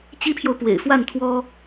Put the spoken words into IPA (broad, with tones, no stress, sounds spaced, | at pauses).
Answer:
t͡ɕ i˥ pʰ j o˨ ʊ̯ p w ḛ˨˩ ɪ̯ f w a˥˩ n t̪ʰ w ɔ˥